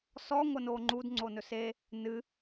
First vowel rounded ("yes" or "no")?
yes